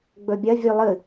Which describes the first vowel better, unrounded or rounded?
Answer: rounded